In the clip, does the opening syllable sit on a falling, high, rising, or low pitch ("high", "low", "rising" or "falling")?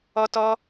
high